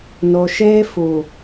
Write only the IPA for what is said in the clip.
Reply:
no˨ʃeː˦ fuː˨

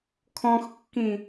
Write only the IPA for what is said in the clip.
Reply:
kʰɔ̃xkːĩ

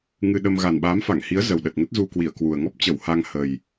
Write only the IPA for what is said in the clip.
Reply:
ŋɨ˧ɗə˧m ɣa˨˩nɓaː˨˦mfa˧˩ŋhi˨˦ə̯ zə˨˩wɗə˨˩t̚ŋə˦˥t̚ zu˧kwi˧˩ə̯ kwu˨˩ə̯ŋɔ˦˥p̚t͡ɕə˧˩w ha˧ŋhə˨˩j

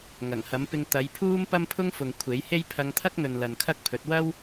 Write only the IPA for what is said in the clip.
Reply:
ŋɐ˨˩ŋhɐ˨˥m pɪ˧ŋ t̪ɐ˨˧jpʰuː˥m pɐ˥m pʰʊ˥ŋfʊ˨ŋ kʷʰe˨˥jhe˥j pʰɐ˧ŋt̪ʰɐ˥k̚n̪ɵ˨n lɐ˨nkʰɐ˥k̚pʰɵ˨˥t̚ wɐ˥w

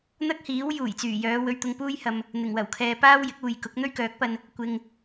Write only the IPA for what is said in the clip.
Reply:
n̪ɐ˥k̚hiː˨˥w juː˨˩jt͡syː˨˩jœː˨˧ wɵ˧ɥt̪ʊ˧ŋpuː˥jhɐ˧m | n̪ɪ˨˩ŋwɐ˨˩wkʰɛː˨ paː˥wjɪ˨˥k̚uː˨jkʊ˨˥k̚ n̪ɵ˥ɥkœː˨˥k̚pɐ˧n | kʷɪ˧ŋ

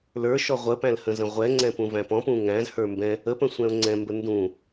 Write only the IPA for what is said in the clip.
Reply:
lə˞ʃɔ ʁʷəpæ̃l hə̃zə̃ʁʷɛŋ͡ǀɛ̃ pũvæ̃pɔ̃pũ ŋæ̃zhə˞ mbɛ̃ | əpə̃ sʷɛ̃ʊ̯ŋ͡ǀɛ̃mbə ndũ

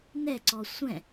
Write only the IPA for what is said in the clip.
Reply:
nɛǀɔ sʷɛ̃

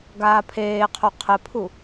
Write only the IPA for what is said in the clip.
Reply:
ɡaːpʰeːqʰo qʰɘpʰu

